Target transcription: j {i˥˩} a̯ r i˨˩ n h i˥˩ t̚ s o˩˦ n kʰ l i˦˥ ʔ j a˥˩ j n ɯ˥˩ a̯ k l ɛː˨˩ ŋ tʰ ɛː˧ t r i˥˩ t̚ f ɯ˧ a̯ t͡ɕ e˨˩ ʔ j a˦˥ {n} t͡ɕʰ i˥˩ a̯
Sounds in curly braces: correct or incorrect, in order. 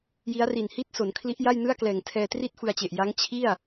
incorrect, incorrect

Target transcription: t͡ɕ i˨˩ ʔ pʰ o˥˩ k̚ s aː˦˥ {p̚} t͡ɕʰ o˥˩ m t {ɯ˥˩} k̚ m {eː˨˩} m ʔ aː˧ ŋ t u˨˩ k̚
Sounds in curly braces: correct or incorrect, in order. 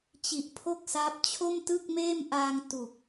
correct, correct, incorrect

